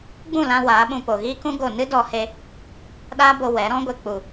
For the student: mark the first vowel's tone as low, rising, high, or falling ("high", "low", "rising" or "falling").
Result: falling